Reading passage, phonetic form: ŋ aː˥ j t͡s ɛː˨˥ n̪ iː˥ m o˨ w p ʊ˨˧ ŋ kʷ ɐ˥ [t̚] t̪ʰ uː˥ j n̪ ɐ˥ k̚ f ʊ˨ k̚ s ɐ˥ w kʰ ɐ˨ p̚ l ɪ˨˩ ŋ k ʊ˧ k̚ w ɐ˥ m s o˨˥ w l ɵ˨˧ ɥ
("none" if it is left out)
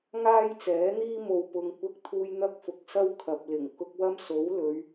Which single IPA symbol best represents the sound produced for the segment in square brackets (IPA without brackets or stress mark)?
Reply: k̚